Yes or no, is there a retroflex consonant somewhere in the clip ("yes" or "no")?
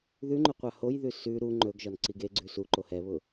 no